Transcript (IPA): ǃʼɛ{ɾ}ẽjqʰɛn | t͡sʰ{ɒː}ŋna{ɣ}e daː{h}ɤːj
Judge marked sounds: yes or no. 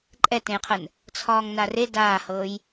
no, yes, no, yes

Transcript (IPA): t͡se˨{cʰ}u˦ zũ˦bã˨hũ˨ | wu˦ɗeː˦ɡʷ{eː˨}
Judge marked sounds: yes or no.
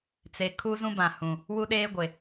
no, no

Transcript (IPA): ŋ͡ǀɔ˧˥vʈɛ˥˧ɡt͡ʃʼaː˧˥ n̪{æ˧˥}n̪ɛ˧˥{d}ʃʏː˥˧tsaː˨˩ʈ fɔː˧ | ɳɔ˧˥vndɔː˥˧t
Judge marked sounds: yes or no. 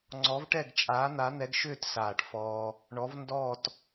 no, no

